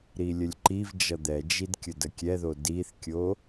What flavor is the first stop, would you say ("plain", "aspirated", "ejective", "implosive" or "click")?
click